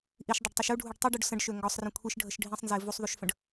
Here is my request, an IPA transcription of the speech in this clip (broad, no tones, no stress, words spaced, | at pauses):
ʔiʃdˤɐɖtˤuʃ uɖʱuɖ tˤiɖuɖ sə̃ɖʃø ŋɡɔsˤrə̃ kʷʰiʃɖʱəʃ ɖʱĩsˤnze vusˤðˤuʃfə̃ɖ